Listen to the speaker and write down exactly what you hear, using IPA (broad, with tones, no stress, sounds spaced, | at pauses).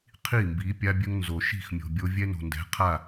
qʰ i˦˨ m b i˨˦ pʲ a˧ bʲ ɵ˧ ŋ n z o˨ ʃ i̤˦˨ x mʲ o̤˨ bʲ o˧ vʲ ɛ˦ n o̤˨ n d ɛ̤˨˦ qʰ a˦˨